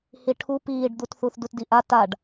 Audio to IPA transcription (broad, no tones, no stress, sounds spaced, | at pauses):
h i ʈʰ u p iː ɖ d̪ u t θ u θ d u t d i ʔ a t a ɖ